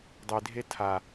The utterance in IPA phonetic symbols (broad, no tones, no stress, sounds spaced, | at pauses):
dˤ i dʱ e tʰ a